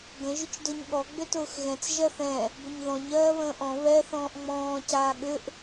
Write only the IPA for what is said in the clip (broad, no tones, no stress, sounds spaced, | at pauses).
ɡ ə̃ ʒ ʏ t͡ʃ d ʊ ɲ ɠ ɔ ɡ͡b ʏ t ʊː x ɣ ɛ̃ t͡s ʒ ɜ θ ɛ̃ | b ʏ ɲ ð ɔ̃ ɲ ɜː β ə̃ː ʔ ɔ̃ β ɛ θ ɔ̃ː ʔ ŋ͡m ɔ̃ː c aː ɠ ʏ ʔ